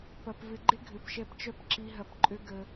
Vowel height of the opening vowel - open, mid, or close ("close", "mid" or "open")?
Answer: open